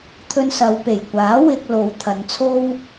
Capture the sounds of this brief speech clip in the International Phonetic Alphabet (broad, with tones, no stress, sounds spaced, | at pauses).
t̪ʰ ɵ˧ n s ɐ˨˧ w p e˨˩ j kʷ aː˨˥ w ɪ˧ k̚ l o˨˧ w t̪ʰ ɐ˨˧ n t͡sʰ o˧ w